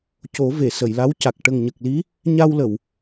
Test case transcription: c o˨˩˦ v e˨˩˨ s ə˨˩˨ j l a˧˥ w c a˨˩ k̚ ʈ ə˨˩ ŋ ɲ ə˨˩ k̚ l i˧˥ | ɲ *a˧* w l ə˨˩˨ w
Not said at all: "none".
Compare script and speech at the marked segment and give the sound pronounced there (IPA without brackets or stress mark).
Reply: a˧